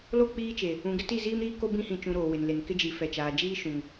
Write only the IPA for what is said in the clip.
l o˦˨ k͡p iː˦ t͡ʃ e˨ | ũ˨ ɡ ɪ˦ t i˦˨ z iː˦ m ɾ iː˦ k o˦ b ĩ˦ h ĩ˨ t͡ʃ ũ˨ ɾ oː˨ w ɪ˨ n l e˨ n k ɪ˦ d͡ʒ i˨ f ɛ˨ t͡ʃ aː˨ d͡ʒ iː˦ ʃ ũ˨ ŋ

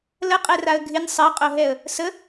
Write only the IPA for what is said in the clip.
l ə qʼ ɛ r a ə̯ ɡʱ ɪ nʲ sˤ ɪ ə̯ qʼ o ɦ ɛ ə̯ | s ə

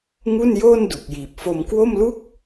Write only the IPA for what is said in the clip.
ŋ u˥˩ n j oː˥˩ n d u˨˩ k̚ j iː˨˩ p̚ f o˧ m k w o˥˩ m l u˥˩ k̚

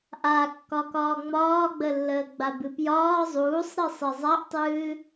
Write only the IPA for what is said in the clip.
ʔ a kː ɒ k ɒː ŋ͡m ɒː ɡ͡b ə lː əː ɡ͡b a b ɨ p j ɒː zˤ uː sˤ ɾ i sˤ i zˤ a ʔ tˤ ɨː

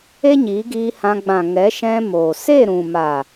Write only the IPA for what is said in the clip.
e˦ ɲ iː˨˦ ɡ iː˧ h ã˧ ɡ͡b ã˨ ŋ ɛ˨˦ ʃ ɛ̃˧ m oː˨ s e˦˨ ɾ ũ˨ m a˨

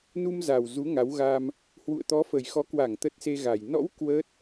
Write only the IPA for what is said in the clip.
n u˧ m z a˨˩ w z u˨˦ ŋ a˨˦ w ɣ a˧ m | h w ṵ˧˨ ə̯ t̪ ɔ˨˦ f ə˨˩ j x ɔ˨˦ k w a˧˩ ŋ t̪ ə˦˥ t̚ s e˧ ɣ a˨˩ j n ɔ̰˧˥ w k w ə˦˥ t̚

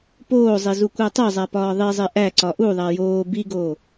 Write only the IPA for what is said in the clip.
p oː zˤ i z u kʷ æ tˤ e zˤ æ p ɒː ðˤ i zˤ e ʔ æ ǀ ɒ ʔ u ðˤ æ j oː b i ɡ oː

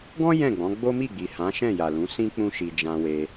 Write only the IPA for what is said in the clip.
ɡ ɔ̃˦ j ɛ̃˦˨ ɡ͡b ɔ̃˨˦ ɡ͡b o˦ m i˦˨ ɡ͡b i˨ h ã˨˦ ʃ ɛ̃˦˨ j a˨ l ũ˨˦ s ĩ˦ k͡p ũ˦ ʃ i˧ d͡ʒ ã˧ w e˧

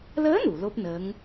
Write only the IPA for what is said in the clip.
l əː˧˥ n u˨˩˨ l o˦˥ p̚ n əː˧˥ ŋ

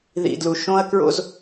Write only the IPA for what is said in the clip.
ð ḭ˨ d l u˨ ʃ õ˦ ɐ̯ k ɹ o̰˦ z

